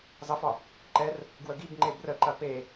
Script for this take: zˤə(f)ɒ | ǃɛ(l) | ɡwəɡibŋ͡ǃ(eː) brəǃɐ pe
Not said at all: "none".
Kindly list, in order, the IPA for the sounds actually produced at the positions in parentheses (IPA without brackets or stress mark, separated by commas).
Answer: f, r, e